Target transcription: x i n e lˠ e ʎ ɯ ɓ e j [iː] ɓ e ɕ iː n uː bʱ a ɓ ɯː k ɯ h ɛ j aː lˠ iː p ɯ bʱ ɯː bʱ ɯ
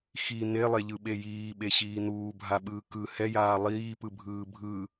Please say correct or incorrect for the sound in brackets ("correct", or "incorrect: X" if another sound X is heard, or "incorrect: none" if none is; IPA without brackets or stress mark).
correct